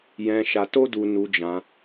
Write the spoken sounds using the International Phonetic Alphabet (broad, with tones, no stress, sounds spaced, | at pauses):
j ɛ̃˧ ʃ a˧ t o˦ d u˧ n u˧ d͡ʒ ã˧